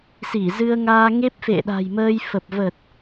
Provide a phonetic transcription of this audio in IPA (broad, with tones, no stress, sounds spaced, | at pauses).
s i˧˩ z ɨ˧ ə̯ ŋ aː˧ ŋ e˦˥ p̚ f ḛ˧˨ ɗ a̤˨˩ j m əː˧ j f ə˨˩ p̚ v ə˨˩ t̚